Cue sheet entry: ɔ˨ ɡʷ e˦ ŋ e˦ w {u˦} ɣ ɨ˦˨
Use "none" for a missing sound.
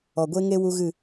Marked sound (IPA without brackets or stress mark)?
u˦